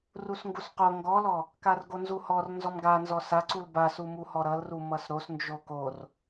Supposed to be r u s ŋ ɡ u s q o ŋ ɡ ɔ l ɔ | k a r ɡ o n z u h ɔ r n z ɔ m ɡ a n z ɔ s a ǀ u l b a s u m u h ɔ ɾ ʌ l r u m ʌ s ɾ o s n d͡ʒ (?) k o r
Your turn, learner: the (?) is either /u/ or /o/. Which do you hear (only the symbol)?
o